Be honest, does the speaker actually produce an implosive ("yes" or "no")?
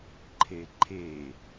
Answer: no